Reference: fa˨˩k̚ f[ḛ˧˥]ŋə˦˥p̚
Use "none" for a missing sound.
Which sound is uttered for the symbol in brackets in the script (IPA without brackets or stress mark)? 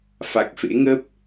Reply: ḛ˧˥